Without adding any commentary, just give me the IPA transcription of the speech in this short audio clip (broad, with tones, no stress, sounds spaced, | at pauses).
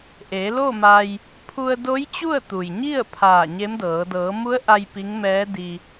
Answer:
ʔ e˩˧ l o˥˨ m a˧ j | pʰ u˧ ə̯ d o˧˥ j t͡ɕ u˥˨ ə̯ t̪ u˩ j ɲ i˥˨ ə̯ pʰ aː˧˩ ɲ e˧˥ m d ɤː˩˧ d ɤː˩˧ m u˧˥ ə̯ ʔ a˧ j p i˧˥ ŋ m ɛː˧˥ d i˧